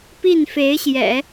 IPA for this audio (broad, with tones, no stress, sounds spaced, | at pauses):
p i˥˩ n f e˧˥ ɪ̯ ɕ j ɛ̰˨˩˦